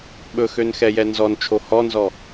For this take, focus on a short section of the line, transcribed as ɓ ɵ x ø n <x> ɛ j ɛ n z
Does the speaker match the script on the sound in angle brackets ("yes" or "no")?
yes